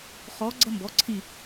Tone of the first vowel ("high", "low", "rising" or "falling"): rising